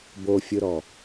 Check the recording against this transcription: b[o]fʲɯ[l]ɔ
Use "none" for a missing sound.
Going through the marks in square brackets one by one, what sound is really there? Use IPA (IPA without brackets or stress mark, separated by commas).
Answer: o, ɾ